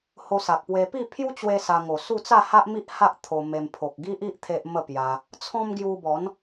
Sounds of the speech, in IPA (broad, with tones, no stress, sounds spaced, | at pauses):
h o˧ s a˨ k̚ p w e˧ p i˥˧ pʰ j u˦ t͡ɕ w e˦ s a˧ ŋ o˨˩ s u˥˧ t͡s a˥˧ h a˦ ʔ m i˦ ʔ h a˦ ʔ t̪ʰ o˧ m e˧ m pʰ o˨ k̚ ɡ i˦ ʔ i˦ ʔ t̪ʰ e˦ ʔ m ə˥˧ p j a˧ | t͡sʰ ɔ̃˦ m ɡ j u˧ b ɔ˨˦ n